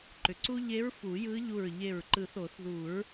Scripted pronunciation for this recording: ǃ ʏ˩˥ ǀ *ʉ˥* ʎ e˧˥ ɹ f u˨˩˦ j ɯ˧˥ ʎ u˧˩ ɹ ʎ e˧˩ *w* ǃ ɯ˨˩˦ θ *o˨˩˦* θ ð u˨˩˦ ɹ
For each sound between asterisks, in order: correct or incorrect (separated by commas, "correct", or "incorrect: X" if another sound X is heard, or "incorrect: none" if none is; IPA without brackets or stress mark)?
incorrect: u˥, incorrect: ɹ, correct